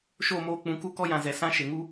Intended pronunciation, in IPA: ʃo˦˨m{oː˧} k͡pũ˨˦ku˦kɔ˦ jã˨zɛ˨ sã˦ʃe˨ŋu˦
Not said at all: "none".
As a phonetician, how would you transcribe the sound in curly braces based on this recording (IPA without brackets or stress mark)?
oː˧